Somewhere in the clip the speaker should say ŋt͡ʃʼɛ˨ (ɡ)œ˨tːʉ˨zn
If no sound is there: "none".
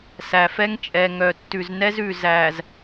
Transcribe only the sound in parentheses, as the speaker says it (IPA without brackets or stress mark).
ŋ